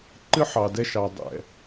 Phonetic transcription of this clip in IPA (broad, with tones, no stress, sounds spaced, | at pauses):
ǃ ɨ˦ ħ ɑ˨ d ɛ˧ ʃ ɑ˨ dˤ ɛ̰˨